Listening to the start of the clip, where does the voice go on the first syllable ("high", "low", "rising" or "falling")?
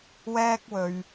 high